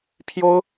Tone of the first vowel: high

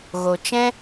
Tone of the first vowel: low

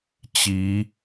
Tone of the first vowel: rising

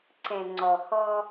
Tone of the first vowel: low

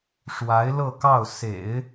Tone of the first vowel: rising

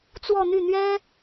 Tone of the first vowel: falling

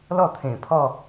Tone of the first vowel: falling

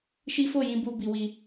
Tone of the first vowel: high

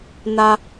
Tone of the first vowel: low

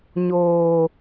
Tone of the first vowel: low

